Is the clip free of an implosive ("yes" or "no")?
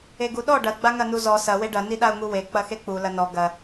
no